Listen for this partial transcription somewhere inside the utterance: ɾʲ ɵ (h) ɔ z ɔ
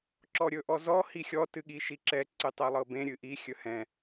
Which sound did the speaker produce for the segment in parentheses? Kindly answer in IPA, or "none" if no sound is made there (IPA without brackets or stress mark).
ʔ